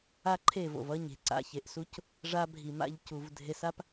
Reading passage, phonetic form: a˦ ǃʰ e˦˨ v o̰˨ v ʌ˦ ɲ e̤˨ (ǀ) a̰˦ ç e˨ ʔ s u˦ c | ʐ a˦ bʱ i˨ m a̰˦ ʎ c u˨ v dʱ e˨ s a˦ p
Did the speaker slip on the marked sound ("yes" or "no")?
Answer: no